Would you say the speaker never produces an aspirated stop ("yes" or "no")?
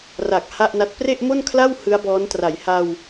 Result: no